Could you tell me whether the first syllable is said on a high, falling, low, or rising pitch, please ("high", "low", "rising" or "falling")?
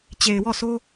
low